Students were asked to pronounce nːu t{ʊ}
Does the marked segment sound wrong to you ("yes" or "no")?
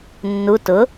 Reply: no